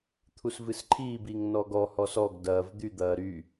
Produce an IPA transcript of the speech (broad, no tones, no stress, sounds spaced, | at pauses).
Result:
t̪ʰ u s v ɨ s ǃʰ iː b i ŋ n ɔ ɡ ɔ h ɔ s ɔ ɡ d ɐː v d̪ y d̪ ɐː ɾ y